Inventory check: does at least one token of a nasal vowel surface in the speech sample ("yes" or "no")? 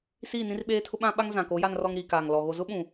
yes